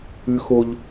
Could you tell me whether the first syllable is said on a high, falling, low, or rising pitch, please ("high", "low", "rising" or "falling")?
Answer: high